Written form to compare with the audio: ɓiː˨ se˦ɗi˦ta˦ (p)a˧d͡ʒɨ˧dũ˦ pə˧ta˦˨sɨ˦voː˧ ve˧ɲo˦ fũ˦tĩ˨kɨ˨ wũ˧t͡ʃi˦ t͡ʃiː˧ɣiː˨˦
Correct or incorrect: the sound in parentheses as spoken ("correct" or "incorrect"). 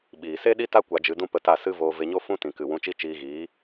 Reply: incorrect